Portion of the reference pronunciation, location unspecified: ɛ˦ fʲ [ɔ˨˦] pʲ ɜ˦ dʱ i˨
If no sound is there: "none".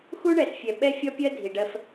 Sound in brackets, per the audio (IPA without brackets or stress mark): ɔ˦